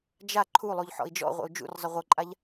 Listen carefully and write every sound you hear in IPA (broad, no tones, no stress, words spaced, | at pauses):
d͡ʒa ǃʰulˠuʎ ħɔ̰i̯d͡ʒɔ̰ʁʷə̰u̯ d͡ʒṵrzˤə ʁʷɤǃʼaʎ